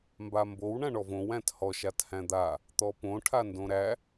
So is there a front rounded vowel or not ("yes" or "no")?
no